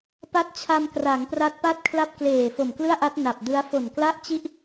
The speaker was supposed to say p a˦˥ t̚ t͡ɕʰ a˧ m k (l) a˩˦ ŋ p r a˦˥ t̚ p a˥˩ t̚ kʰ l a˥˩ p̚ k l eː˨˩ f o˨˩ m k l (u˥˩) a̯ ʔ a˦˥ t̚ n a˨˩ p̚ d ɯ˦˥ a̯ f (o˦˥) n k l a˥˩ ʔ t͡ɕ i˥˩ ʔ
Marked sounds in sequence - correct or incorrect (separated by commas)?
incorrect, incorrect, incorrect